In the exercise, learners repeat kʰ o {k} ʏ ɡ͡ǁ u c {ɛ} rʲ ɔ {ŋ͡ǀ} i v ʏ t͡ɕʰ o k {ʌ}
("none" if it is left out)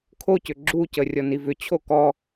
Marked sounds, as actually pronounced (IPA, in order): c, ə, n, ɔ

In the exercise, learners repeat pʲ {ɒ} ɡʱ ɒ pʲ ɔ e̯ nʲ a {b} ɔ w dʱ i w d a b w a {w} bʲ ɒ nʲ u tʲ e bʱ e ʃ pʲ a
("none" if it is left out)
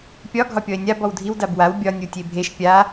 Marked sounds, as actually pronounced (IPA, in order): ɒ, b, w

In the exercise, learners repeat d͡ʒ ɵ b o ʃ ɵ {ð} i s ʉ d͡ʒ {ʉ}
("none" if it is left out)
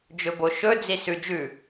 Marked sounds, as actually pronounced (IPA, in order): d͡z, ʉ

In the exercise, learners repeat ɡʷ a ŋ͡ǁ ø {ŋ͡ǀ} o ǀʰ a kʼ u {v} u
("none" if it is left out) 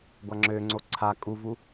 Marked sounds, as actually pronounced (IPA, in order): ŋ͡ǀ, v

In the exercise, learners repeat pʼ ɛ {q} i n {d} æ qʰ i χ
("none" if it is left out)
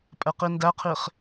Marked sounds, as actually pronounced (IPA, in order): q, d

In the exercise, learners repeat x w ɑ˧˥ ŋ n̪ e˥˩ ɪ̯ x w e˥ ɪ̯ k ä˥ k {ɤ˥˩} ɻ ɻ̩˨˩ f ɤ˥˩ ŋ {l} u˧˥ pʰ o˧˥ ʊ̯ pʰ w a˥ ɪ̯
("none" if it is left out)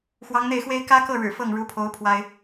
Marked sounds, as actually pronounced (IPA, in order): ɤ˥˩, ɻ

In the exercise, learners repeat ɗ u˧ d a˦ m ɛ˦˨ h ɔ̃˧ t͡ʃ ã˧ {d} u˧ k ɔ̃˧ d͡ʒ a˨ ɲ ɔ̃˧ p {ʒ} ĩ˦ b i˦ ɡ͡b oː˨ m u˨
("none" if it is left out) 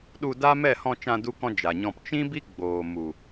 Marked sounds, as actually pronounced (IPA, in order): d, t͡ʃ

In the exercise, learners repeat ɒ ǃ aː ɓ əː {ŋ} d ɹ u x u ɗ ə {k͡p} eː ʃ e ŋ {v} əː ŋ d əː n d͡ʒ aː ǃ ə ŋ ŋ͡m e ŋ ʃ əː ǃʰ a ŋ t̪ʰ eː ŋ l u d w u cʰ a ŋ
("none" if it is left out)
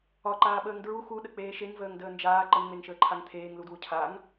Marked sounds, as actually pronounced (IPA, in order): ŋ, k͡p, v

